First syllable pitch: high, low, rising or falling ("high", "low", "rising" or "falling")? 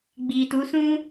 low